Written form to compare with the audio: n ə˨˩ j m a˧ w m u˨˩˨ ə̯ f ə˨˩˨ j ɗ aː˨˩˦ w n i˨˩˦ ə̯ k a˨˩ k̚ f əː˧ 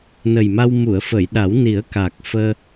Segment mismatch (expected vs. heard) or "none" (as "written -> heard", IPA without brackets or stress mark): aː˨˩˦ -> a˨˩˦